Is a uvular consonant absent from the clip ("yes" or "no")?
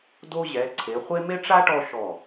no